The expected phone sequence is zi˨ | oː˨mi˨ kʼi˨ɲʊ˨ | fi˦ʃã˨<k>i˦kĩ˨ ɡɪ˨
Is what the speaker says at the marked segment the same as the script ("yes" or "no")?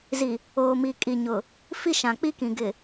no